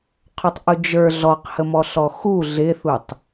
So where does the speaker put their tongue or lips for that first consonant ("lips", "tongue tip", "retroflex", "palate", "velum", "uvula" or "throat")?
uvula